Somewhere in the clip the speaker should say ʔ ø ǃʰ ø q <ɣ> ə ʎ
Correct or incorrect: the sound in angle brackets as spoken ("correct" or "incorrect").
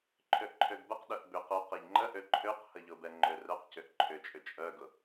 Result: incorrect